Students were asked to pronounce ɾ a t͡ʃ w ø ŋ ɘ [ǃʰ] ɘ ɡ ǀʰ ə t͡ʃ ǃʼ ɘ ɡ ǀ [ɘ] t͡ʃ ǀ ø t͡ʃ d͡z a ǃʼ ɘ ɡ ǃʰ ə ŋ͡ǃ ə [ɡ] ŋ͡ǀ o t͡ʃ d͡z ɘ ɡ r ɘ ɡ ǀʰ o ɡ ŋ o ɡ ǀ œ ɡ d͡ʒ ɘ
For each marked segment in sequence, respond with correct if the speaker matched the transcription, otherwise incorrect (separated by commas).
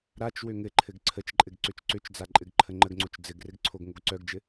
correct, incorrect, correct